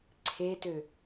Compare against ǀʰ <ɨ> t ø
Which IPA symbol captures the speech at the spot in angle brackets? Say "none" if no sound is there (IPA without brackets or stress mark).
e